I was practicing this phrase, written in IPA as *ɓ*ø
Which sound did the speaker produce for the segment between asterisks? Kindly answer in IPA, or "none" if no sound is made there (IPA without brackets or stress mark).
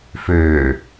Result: f